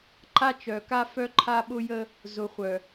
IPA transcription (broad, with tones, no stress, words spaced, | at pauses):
ǃa˦t͡ʃœ˨ka˦ fœ˦ǃʰa˦ɓʊ˦jə˦ | zʊ˨χʷœ˨